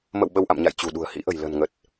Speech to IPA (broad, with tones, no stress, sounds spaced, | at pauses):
m ə̰˧˨ w ɓ ə˧ w ʔ a̰˧˨ m ɲ a̰˧˨ j t͡ɕ ṳ˨˩ ɗ ṳ˨˩ ə̯ h ḭ˧˥ ʔ ə̤˨˩ j l ə̤˨˩ n ŋ ə˨˩ t̚